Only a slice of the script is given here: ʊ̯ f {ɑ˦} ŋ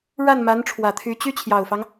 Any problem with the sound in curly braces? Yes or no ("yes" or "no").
no